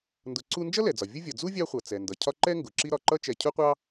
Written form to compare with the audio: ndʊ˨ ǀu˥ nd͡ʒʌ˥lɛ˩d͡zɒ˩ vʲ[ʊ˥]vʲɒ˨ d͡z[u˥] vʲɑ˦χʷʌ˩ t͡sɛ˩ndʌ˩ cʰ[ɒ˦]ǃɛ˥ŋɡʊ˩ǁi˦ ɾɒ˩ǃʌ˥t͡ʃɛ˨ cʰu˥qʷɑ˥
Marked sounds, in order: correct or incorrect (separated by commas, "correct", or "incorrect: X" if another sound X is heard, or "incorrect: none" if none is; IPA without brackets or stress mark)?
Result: correct, correct, correct